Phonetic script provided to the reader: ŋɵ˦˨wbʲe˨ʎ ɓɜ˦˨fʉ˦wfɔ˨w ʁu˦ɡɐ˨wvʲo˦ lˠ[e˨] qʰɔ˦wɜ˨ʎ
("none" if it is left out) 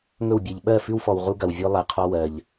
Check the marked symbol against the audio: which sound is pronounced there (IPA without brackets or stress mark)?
e˨